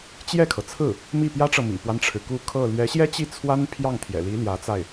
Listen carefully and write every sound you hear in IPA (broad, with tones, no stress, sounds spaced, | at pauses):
t͡ɕ j ɛ˥˩ kʰ ɤ˩ t͡sʰ ɹ̩˥˩ | m i˥˩ p j ä˥ ʈ͡ʂ ɤ˨ m ḭ˨˩ p w a˦ n ʈ͡ʂʰ ɻ̩˩ k u˥˧ kʰ ɤ˥˩ l ɥ ɛ˧˥ ɕ j ɛ˥ t͡ɕ i˥˩ t͡sʰ w a˥ n pʰ j ɑ˥˩ ŋ t̪ʰ j ɛ̰˨˩ l i˧˥ l j ä˧˥ t͡s a˥˩ ɪ̯